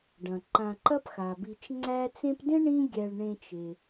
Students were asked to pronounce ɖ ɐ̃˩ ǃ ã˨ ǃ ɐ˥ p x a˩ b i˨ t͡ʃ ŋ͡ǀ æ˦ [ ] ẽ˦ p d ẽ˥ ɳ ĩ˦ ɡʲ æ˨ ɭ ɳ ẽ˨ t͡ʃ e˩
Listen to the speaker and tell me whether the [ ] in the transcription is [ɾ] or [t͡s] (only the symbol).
t͡s